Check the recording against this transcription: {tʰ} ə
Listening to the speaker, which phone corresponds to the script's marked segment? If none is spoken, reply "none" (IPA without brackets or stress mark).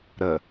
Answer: ɾ